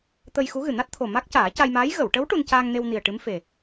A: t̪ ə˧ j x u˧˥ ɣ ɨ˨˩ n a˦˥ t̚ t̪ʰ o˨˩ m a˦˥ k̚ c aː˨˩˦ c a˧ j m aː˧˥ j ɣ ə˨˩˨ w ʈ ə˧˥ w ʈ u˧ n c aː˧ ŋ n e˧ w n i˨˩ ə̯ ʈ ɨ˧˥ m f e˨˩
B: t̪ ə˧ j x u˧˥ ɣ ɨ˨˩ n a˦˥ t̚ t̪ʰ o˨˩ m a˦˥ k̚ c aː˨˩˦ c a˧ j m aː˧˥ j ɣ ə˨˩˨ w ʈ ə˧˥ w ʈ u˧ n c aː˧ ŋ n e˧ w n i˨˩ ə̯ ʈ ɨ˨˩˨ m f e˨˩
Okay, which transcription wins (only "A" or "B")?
A